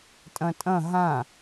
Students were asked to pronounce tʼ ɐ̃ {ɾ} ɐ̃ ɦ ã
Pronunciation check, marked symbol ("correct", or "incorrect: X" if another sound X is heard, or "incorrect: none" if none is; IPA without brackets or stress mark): incorrect: tʼ